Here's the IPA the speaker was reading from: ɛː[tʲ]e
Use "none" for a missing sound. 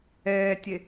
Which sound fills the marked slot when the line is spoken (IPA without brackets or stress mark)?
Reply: tʲ